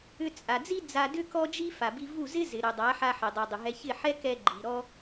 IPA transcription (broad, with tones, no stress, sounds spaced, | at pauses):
ʏ˧ t͡sʼ a˨ d͡z i˦ d͡z a˧ d ʏ˦ k ɔ˦ d͡ʒ i˦ f a˨ b i˧ v u˦˨ z ɪ˦ z ɪ˨ ɾ ʏ˨ dˤ a˨˦ ħ a˧ ħ i˨ dˤ u˨ dˤ ʏ˨ ɦ ɛ˧ ç ɪ˦˨ ħ ɛ˦ k ɛ˧ ɡ͡ǃ i˨ ɾ ɔ˦